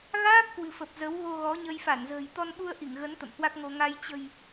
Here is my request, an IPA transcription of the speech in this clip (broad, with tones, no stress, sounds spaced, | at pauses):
ɣ aː˦˥ p̚ k w ɨ̤˨˩ f ə˨˩ p̚ z ə˨˦ w ɣ o˧ ɣ ɔ˨˦ ɲ ə˧ j f a˧˩ n z ə̤ː˨˩ j t̪ ɔ˧ n ɓ u˧ ə̯ ʔ i˧˩ ŋ ɣ ə˨˦ n t̪ ə̰˧˨ m h w a˦˥ k̚ ŋ o˧ ŋ a˧ j t͡ɕ ə̤˨˩ j